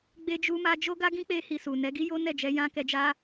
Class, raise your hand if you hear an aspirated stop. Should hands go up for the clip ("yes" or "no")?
no